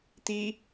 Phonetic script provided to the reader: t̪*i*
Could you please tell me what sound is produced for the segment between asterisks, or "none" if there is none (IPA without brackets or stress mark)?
i